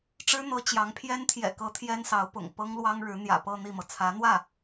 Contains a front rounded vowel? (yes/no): no